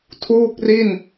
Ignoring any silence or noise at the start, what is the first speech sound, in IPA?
tʰ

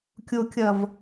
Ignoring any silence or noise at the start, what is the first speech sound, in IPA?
kʲ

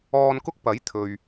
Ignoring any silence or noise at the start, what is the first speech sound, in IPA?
ɔː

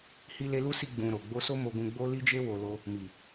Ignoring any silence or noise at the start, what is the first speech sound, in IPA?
h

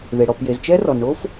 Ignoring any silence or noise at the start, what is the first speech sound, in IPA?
ð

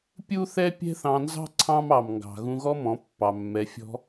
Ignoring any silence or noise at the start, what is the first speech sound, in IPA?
pʲ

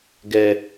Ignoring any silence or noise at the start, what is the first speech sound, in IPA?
ɡ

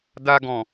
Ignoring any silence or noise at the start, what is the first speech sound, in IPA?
d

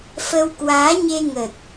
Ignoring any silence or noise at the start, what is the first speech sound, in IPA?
f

